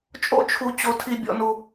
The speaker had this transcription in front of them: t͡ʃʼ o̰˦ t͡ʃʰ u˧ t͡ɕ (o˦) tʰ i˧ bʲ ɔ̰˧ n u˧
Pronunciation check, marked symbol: incorrect: o˧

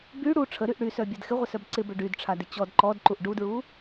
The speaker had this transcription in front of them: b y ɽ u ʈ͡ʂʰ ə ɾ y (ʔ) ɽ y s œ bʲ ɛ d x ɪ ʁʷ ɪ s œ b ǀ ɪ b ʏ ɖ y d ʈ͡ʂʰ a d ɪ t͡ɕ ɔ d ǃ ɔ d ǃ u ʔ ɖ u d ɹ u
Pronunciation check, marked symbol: correct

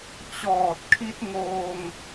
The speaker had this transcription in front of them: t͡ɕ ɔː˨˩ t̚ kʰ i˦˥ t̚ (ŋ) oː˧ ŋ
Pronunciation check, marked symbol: correct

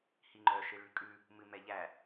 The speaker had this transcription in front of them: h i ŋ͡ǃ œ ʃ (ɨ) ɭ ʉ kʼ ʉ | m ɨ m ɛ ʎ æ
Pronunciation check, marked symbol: correct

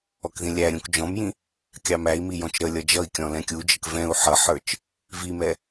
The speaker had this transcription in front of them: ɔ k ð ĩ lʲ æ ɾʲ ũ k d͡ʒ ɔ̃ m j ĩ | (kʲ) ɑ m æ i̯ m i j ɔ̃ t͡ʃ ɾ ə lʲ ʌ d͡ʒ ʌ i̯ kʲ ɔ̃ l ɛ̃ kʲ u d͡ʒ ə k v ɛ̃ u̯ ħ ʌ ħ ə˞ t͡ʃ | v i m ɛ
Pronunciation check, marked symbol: correct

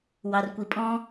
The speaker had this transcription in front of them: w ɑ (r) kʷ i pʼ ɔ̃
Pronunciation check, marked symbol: correct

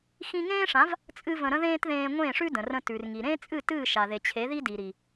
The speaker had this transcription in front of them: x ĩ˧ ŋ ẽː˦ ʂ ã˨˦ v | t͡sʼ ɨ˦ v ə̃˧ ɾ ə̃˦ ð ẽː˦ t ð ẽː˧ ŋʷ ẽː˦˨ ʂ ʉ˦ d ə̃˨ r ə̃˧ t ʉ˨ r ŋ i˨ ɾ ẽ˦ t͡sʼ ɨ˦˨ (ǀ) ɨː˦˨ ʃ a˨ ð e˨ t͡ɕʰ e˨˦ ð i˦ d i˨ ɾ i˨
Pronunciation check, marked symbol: incorrect: t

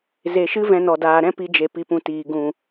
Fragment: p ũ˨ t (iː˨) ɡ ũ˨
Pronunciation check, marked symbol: correct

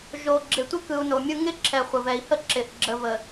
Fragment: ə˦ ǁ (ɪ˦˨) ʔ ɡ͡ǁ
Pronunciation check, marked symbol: incorrect: ɪ˨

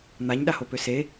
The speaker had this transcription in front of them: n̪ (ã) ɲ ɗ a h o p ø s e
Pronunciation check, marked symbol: incorrect: a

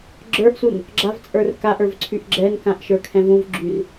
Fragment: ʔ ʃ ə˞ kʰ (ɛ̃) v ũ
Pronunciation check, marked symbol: correct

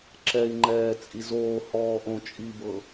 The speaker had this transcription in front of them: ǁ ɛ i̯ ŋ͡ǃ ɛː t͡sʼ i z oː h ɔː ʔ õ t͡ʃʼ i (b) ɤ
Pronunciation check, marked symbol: correct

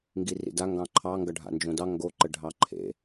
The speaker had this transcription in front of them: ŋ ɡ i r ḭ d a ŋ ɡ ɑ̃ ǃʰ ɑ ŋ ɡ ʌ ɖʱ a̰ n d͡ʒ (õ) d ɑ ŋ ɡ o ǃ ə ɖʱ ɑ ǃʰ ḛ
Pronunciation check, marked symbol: correct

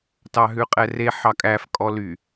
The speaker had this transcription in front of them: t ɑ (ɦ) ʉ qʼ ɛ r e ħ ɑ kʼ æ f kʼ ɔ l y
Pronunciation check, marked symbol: correct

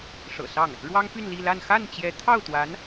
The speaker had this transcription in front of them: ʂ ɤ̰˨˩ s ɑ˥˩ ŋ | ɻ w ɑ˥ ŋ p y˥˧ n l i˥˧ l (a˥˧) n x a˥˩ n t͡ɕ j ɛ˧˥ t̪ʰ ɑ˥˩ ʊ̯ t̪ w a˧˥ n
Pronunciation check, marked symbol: correct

